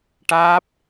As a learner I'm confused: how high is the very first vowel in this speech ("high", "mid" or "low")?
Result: low